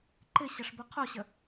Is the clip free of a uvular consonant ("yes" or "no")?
no